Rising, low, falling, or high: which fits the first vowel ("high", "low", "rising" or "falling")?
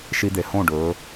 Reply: high